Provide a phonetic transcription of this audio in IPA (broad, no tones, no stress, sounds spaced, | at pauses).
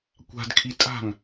kʷ a̤ d kʰ i tʼ a̤ ŋ